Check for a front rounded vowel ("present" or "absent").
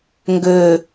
present